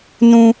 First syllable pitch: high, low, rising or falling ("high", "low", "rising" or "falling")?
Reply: high